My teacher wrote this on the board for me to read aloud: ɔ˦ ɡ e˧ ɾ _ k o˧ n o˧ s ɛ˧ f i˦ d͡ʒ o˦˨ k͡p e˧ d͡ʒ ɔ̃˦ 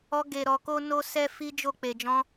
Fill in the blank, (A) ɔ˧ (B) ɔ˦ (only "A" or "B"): A